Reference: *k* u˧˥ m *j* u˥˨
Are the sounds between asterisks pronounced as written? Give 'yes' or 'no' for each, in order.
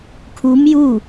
no, yes

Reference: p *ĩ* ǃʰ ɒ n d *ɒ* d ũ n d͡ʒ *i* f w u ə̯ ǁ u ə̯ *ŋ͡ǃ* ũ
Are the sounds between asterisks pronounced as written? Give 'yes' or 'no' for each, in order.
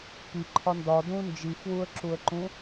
no, yes, yes, no

